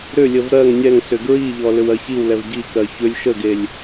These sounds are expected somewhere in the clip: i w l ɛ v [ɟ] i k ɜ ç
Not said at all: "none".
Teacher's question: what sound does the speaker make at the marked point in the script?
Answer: ɟ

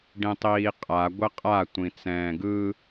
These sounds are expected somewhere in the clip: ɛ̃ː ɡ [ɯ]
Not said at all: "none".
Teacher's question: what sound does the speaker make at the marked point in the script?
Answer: ɯ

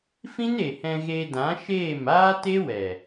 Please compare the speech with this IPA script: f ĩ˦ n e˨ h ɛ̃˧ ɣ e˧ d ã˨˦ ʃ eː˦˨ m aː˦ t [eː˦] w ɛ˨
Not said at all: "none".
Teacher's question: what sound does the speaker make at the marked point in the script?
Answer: e˦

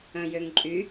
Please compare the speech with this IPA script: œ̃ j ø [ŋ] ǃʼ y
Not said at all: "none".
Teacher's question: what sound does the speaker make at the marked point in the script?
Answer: ŋ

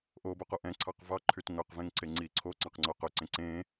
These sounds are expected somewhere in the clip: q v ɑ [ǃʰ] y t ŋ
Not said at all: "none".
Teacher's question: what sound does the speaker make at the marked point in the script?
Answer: ǃʰ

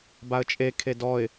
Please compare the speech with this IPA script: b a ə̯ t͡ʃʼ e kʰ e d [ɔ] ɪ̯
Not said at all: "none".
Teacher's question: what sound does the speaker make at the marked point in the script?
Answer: ɔ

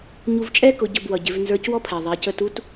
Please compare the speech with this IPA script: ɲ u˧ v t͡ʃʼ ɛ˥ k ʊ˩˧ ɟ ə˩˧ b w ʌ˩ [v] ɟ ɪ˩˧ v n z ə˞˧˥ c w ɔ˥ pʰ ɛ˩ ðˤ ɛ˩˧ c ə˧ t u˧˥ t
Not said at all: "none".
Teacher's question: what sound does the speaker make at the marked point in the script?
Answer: none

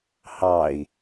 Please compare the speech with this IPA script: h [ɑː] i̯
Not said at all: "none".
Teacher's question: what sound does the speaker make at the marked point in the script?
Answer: ɑ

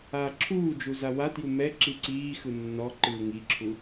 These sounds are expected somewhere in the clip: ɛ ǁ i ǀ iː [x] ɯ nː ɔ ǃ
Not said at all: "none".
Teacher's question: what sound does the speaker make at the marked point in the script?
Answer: x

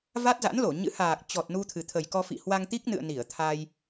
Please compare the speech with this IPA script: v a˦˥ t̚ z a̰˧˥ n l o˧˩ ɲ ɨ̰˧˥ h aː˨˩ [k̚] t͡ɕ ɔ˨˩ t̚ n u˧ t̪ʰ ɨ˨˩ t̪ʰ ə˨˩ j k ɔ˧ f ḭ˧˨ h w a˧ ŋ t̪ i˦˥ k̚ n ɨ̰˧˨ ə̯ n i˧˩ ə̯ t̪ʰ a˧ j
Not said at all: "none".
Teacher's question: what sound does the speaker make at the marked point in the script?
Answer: k̚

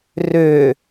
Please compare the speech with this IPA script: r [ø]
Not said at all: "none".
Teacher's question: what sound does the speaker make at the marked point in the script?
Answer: ø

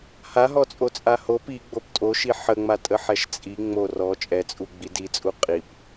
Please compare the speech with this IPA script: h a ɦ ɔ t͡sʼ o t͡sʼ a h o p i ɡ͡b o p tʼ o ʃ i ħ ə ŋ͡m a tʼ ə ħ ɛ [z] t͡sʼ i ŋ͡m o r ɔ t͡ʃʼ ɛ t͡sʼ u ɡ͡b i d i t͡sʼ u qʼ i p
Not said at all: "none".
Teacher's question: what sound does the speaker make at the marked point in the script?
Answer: ʃ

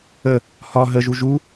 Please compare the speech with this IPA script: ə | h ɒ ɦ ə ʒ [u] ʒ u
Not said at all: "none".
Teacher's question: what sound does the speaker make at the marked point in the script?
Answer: u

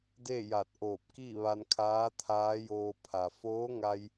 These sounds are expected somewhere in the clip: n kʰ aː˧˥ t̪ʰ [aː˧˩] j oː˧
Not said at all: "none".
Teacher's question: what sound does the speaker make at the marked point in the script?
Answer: aː˧˥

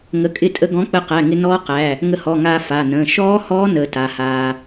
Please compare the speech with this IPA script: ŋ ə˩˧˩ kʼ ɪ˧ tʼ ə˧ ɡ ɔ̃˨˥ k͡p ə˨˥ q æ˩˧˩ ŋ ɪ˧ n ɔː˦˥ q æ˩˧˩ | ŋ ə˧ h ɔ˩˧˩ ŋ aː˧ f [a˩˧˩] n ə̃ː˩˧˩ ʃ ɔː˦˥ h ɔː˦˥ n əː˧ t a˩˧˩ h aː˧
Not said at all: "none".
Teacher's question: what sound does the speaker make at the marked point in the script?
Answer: a˩˧˩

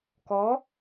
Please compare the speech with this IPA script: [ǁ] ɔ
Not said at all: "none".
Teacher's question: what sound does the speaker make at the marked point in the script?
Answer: k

